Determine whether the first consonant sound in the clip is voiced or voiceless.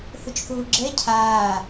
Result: voiceless